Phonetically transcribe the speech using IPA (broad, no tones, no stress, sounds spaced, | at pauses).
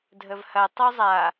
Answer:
dʱ ə v h ɐ tˤ o zˤ a